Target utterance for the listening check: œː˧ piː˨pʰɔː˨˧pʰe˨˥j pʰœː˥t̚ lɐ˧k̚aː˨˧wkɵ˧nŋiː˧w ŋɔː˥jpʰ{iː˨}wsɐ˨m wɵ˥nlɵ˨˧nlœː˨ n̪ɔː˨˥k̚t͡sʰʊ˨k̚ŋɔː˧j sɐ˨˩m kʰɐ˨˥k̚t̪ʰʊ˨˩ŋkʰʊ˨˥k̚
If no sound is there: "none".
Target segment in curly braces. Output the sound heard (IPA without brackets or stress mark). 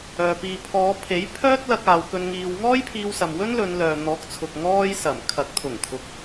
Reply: iː˧